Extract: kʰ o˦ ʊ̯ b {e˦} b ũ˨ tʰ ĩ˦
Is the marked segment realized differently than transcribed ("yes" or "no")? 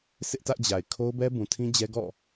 yes